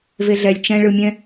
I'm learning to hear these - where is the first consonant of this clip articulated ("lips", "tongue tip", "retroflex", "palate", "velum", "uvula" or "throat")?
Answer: lips